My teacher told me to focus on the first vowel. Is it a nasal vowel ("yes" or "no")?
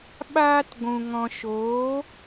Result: no